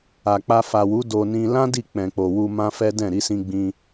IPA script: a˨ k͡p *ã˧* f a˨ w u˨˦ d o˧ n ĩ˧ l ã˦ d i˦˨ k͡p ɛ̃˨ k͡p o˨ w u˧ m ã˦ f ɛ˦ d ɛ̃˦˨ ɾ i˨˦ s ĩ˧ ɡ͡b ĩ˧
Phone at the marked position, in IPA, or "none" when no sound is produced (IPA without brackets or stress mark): a˧